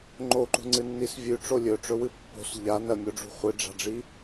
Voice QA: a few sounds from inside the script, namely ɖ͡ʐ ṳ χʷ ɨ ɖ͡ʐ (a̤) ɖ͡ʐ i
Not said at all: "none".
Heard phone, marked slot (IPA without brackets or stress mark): a̤